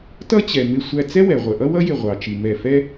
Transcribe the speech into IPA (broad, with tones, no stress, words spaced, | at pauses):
tʌ˥t͡ɕɛ˩mɪ˧˩ sʷæ˧˩t͡sɛ˥wɛ˩ ʁʷə˩ʔʌ˥wʌ˥jɪ˧˩ ʁʷɑ˩t͡ʃi˩ mɛ˧˩fɛ˥